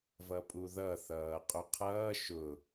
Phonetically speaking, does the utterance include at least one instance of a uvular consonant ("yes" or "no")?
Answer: yes